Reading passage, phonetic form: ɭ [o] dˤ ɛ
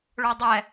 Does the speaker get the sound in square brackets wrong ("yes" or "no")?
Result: no